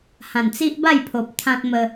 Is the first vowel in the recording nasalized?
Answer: yes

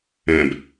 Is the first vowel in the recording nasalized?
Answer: yes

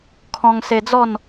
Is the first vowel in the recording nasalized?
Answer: yes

